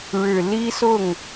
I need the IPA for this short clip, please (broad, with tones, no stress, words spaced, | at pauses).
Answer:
ɻɻ̩˨˩li˥sʊ˥˩ŋ